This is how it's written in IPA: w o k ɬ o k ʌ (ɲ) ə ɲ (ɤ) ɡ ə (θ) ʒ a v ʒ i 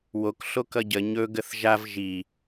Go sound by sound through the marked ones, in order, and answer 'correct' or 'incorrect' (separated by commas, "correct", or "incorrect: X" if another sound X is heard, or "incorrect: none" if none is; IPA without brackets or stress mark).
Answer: incorrect: ɟ, incorrect: ɵ, correct